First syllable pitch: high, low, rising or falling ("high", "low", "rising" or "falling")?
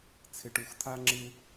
low